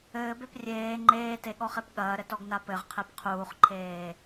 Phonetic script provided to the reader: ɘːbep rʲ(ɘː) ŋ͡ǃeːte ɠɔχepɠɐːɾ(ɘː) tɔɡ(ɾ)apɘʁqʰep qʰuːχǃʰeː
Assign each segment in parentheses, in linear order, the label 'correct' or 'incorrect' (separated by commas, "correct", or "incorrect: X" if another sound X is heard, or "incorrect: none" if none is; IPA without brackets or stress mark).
incorrect: eː, incorrect: ɘ, incorrect: n